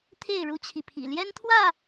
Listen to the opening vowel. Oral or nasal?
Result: oral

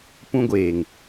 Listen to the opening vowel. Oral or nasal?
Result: nasal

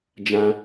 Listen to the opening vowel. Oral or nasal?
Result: nasal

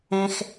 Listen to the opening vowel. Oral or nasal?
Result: nasal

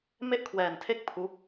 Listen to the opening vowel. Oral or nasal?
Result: oral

